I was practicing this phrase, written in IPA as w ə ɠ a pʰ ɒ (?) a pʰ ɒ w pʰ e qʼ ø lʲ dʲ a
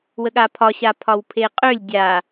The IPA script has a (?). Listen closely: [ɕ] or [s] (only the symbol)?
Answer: ɕ